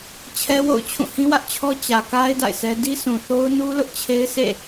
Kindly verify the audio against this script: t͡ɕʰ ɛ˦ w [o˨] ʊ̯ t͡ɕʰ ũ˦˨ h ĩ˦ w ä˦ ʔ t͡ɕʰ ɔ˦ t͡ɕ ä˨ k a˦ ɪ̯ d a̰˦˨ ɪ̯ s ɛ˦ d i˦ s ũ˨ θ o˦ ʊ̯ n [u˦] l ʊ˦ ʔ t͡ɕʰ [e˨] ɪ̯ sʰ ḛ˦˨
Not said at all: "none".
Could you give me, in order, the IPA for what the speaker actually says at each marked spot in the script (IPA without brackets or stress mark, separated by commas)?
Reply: o̰˦˨, u˦, e˦